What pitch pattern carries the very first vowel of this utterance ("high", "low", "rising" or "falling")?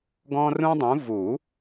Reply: high